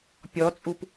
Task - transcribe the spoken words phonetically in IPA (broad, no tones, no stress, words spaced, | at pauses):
pʲɔt͡sʼup